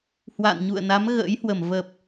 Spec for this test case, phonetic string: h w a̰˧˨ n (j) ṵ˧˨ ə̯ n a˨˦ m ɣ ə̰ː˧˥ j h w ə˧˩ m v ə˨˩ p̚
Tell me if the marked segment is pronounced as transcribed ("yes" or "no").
no